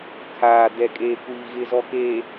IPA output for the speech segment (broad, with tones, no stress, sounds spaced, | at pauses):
kʰ aː˨ d ɛ˨ kʼ eː˨ kʷ iː˨ ɣ ɪ˨ z ɔ˨ k eː˨